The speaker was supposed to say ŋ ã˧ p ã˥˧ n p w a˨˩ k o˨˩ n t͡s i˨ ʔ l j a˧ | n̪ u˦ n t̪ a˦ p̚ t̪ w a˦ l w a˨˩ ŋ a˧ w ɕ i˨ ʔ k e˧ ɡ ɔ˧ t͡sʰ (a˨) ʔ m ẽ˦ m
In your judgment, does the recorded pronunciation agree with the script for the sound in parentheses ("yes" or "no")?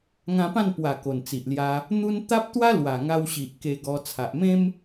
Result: yes